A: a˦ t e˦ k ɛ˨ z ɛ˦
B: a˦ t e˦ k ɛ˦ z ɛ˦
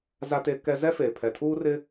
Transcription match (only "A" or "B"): B